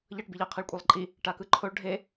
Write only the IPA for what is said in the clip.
ʎʌʈbiʎa qʰiɭkʷʼelˠǃʼi | ʈakɯǃʰoɭ ɖʱe

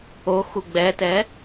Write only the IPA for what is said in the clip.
o xuɡ͡bɛtɛ

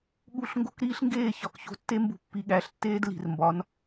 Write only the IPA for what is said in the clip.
ɠu˦˨ɬ ŋɡo̤˦kɾiː˦ɬŋɡeː˦˨ çɒ˨kço̤˧tːe˦ mbṳ˧pːi˨ɠæ˨˦ɬtːeː˦d li̤˨rmbɒ˨˦n

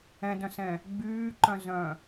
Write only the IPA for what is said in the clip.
ɛ̃dœ̃sɛ̃ | ɡ͡byːǃœ̃zœ̃

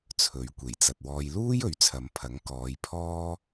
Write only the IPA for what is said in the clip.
t͡sʰɵ˨˧ɥ kʷe˨˩jt͡sɐ˨t̚ wɔː˨jluː˥j ɵ˨˥ɥt͡sʰɐ˨˧mpʰɐ˨˥ŋ kɔː˨˧jpʰɔː˥

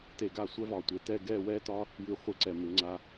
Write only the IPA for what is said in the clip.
te˧˩ɡa˥˧sʷɛ˥vɒː˧˩ tʷe˧tɛː˥˧ ɡɛː˥˧wɛː˥tɒː˥ | jʉ˧˩χʷɪː˧˩ǀɛ˧˩ mɪ˩˧ŋ͡ǀaː˧

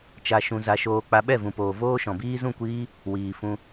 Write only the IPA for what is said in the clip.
t͡ʃa˧ ʃũ˧za˧ ʃoː˧k͡pa˧ ɓɛ˦˨vũ˨poː˨ voː˦ʃɔ̃˨biː˦ zũ˦˨kʷiː˦ | wiː˨ fũ˧

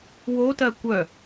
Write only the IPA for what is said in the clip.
wotɜ kʷœ

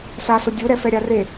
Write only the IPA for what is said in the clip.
sasʊ dʲuɾɛfɛ ɾʲare

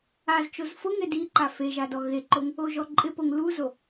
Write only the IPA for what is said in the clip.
az t͡ʃozfʊŋɪ di ǃafeʒa dɔɣeǃoŋ | oʒɔǃʼɪpoŋ luzo

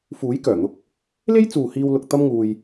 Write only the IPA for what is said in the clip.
fuː˨˥jkœː˨˩n̪ʊ˧k̚ | le˥jt͡suː˨ hiː˧wlʊ˨k̚ t̪ɐ˥mŋuː˧j

